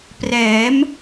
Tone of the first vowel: rising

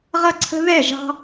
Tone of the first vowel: high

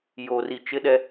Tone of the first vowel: low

